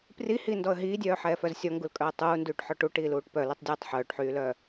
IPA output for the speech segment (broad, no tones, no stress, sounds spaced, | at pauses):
p r i h iː n d ɔ ə̯ ɦ iː dʲ œː ħ ɛː f œ z sʲ ɔ ŋ ɡ u l kʼ œ ə̯ tˤ uː n d yː ʈ ħ ɔ ʈ u ʈ iː l uː ʈ p œ l u tˤ dʲ ɛː tˤ ħ œː ʈ ħ yː l œː